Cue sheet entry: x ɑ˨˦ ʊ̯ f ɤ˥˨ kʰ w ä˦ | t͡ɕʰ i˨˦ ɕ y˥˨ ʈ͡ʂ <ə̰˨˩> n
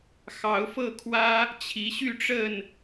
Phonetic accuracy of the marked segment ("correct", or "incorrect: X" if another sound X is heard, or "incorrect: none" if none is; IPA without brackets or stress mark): incorrect: ə˥˨